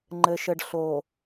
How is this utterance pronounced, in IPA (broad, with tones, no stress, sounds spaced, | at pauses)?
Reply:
ŋ͡ǃ ɘ˨ ʃ ɘ˨ ɖ ɬ o˨